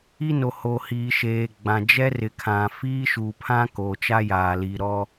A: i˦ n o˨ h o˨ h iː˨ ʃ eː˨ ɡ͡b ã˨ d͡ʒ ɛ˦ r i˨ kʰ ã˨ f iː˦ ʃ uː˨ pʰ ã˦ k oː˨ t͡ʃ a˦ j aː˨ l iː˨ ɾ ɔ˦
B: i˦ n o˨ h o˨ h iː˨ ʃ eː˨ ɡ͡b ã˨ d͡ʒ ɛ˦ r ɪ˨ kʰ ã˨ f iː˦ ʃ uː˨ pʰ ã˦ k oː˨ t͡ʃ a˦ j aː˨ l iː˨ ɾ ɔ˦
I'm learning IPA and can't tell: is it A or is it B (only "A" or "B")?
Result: B